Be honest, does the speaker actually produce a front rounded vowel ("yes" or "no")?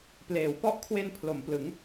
no